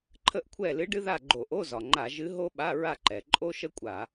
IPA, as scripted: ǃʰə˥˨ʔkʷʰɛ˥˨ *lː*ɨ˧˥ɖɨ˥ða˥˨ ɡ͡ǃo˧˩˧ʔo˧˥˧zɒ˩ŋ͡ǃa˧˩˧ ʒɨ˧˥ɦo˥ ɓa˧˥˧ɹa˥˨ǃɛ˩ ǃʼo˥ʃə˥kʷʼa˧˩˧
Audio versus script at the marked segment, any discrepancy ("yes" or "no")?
yes